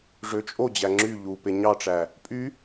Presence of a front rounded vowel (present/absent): present